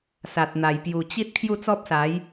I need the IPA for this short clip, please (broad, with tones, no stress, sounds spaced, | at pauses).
s a˨ t̚ n̪ a˨˩ j p j u˨˩ t͡ɕ i˦ t̚ kʰ j u˥˧ t͡s ɔ˦ p̚ s a˨˦ j